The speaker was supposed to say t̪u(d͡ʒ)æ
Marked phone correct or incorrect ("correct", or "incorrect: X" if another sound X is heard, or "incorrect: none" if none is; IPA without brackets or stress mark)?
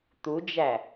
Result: correct